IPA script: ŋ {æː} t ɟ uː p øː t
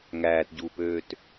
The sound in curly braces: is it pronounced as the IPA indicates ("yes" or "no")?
yes